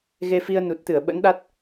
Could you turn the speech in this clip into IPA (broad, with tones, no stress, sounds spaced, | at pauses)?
ɣ e˧ f i˧ ə̯ n u˨˩ t̚ t̪ ɨ˧˩ ə̯ ɓ ə̰˧˥ n ɗ a˦˥ t̚